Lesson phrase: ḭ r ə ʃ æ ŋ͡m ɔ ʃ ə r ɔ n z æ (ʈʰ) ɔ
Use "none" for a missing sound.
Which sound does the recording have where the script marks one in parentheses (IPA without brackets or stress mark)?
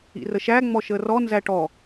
ʈ